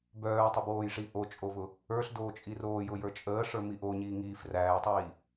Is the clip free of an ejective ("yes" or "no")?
no